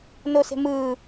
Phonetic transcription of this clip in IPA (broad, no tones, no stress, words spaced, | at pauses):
nose̤mɯː